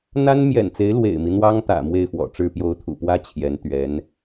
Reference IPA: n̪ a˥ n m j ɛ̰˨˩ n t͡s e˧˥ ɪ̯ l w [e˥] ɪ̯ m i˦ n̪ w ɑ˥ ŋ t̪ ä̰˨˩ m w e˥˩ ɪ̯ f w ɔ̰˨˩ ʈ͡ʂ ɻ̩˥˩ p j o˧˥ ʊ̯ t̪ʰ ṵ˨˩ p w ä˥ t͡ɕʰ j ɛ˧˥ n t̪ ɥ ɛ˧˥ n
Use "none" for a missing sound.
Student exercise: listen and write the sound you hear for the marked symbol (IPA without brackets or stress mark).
ḛ˨˩